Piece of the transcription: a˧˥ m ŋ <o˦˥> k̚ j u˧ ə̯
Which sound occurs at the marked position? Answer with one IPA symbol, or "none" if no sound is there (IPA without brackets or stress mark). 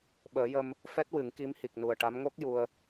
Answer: o˦˥